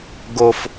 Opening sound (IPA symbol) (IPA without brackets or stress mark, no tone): ɡ